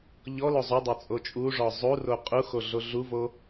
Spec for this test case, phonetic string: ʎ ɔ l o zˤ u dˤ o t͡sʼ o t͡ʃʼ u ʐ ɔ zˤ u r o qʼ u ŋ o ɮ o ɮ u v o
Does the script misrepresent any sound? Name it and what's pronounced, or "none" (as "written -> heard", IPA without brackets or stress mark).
ŋ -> x